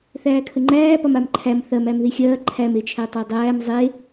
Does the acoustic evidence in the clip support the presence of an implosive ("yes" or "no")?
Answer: no